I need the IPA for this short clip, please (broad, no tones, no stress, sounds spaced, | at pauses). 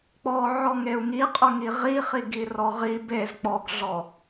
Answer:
k͡p ɔ ʕ ɔ ŋ e u̯ ŋ i qʼ ɵ ŋ i ʁ i χ i ɡ i r ɔ ʁ i b e z k͡p ɔ ɡ ɮ ɔ